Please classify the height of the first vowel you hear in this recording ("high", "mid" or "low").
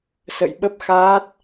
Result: mid